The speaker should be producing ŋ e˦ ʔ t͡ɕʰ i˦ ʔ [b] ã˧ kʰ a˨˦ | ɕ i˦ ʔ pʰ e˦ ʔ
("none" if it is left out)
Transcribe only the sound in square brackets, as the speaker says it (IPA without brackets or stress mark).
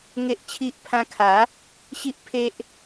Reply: pʰ